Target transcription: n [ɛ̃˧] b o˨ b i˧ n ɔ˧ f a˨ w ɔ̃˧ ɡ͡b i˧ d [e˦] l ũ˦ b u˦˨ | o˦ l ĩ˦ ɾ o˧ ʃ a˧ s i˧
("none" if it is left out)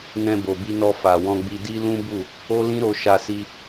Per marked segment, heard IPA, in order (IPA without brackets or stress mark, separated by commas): ɛ̃˧, i˦